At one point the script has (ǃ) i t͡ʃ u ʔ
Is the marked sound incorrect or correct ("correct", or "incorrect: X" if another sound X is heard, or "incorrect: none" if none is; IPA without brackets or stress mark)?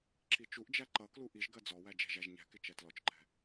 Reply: incorrect: ǁ